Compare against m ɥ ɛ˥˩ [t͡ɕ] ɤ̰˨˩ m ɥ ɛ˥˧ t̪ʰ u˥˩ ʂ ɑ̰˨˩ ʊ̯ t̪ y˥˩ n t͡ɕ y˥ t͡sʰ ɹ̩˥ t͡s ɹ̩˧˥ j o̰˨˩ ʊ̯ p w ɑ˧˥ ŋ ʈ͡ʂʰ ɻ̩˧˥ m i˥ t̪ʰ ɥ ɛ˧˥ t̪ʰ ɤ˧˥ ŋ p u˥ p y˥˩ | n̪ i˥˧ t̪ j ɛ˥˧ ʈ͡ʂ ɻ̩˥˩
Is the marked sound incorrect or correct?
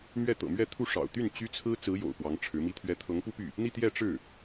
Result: incorrect